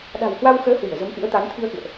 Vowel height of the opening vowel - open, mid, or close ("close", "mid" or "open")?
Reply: open